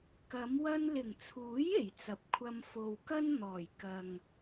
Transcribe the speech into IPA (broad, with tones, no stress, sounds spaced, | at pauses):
k ɐ˨˧ m w ɐ˧ n l ɪ˨˩ ŋ t͡sʰ uː˨˥ j e˨˩ j t͡s ɐ˨ p̚ kʷʰ ɐ˧ m f o˨ w k ɐ˥ n n̪ ɔː˨˩ j k ɐ˨ ŋ